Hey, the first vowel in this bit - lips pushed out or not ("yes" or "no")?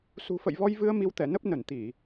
yes